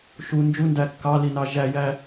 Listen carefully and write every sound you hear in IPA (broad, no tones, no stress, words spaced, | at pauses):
ʃu nd͡ʒundæ kːɑlinɑ ʒæjæ